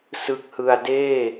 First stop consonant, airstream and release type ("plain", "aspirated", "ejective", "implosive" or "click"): plain